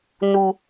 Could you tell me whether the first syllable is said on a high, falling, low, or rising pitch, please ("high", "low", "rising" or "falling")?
high